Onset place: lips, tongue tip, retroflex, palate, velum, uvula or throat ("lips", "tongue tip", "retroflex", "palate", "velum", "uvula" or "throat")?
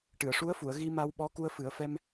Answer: retroflex